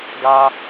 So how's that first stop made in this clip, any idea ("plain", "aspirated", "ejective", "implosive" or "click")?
plain